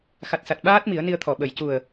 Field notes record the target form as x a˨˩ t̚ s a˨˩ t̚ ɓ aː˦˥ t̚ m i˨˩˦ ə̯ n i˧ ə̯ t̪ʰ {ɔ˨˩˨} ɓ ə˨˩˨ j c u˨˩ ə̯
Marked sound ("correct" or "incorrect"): correct